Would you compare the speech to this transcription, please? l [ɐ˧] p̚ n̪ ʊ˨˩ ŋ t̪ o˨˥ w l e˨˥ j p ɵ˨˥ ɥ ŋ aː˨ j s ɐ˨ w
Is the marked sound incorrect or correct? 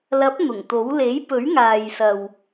incorrect